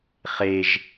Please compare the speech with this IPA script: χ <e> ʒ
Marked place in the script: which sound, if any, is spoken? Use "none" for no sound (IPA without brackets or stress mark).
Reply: e